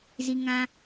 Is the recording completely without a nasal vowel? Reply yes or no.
no